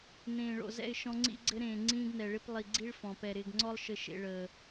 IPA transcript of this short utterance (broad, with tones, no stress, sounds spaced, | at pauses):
n ẽː˨ ɭ o̰˨ z ɛ̰˦˨ ɪ̯ ʃ ɔ̃˦ ŋ͡ǀ ḭ˦ ɡ͡ǀ ɘ˦ ɾ ẽː˨ ŋ͡ǀ ĩː˦ ɡ n ɛ˨ ɭ ɪ˦ p lˠ i˨ ɡ͡ǀ i˦ ɭ f ɔ̃˨ p ɛ˨ ɾ ɪː˨ ɡ ŋ͡ǀ ɔ˦ lˠ ʃ ɘ˨ ʃ ḛ˨ ɭ əː˨